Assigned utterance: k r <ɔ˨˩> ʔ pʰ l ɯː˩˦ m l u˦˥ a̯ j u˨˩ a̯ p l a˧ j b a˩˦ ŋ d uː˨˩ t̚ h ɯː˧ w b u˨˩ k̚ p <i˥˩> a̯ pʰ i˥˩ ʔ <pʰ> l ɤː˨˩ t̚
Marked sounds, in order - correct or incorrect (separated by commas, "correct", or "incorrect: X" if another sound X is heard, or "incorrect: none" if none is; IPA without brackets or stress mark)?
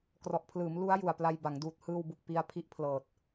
correct, incorrect: i˧, correct